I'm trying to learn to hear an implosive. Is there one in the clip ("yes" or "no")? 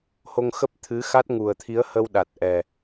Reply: yes